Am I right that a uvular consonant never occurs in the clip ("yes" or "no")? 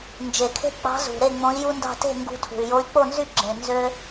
yes